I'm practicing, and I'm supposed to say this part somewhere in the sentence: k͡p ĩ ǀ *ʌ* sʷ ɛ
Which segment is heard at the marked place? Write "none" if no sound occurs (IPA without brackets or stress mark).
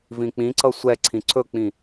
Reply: ʌ